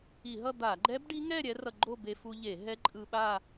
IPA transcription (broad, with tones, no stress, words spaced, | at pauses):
i˧˩˧ɦʌ˥˧d̪a˧˩˧ ɡ͡ǃɛ˦˥bɖi˦˥ŋɛ˥˧ ɾʲɛ˦˥rʌ˧ɡ͡ǃo˥˧ be˧fu˧ʎe˧˩˧ɦɛ˦˥ ǃʼɯ˧ɓa˥˧